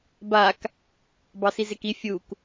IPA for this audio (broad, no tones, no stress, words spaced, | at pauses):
bak | bɑsizeki fʲuk